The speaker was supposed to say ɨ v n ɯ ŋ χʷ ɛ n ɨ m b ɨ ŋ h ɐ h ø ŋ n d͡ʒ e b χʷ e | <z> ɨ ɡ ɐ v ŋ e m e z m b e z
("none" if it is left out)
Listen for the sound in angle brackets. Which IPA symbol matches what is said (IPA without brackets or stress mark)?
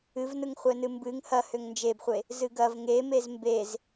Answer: z